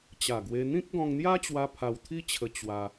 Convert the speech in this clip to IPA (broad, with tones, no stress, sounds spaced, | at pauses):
t͡ɕ a˨˩ ɡ w e˧ n̪ ĩ˦ k̚ ɡ ɔ̃˧ ŋ n̪ j a˦ t͡ɕ w a˧ pʰ a˧ w t̪ʰ i˦ t͡ɕʰ ə˧ t͡ɕ w a˧